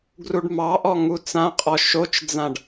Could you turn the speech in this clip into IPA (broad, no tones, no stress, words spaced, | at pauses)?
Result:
ɡruɖmɑʔɔ ŋut͡sãqʼɔ ʃot͡ʃd͡zãɖ